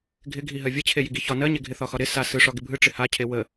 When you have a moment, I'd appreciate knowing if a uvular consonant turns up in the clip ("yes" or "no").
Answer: no